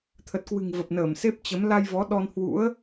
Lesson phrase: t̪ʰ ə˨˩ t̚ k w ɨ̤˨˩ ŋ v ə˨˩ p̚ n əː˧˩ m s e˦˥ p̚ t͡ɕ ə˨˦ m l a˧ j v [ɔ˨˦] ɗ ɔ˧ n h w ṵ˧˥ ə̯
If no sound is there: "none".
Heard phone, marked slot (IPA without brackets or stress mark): ɔ˨˦